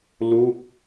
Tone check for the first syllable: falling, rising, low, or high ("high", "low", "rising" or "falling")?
falling